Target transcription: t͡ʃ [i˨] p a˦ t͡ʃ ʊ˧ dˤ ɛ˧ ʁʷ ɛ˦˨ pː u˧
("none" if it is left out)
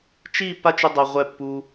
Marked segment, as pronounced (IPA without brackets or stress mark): i˦˨